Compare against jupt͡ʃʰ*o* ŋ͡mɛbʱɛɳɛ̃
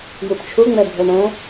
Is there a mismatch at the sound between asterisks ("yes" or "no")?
yes